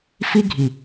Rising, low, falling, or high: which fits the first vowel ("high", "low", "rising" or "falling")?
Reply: high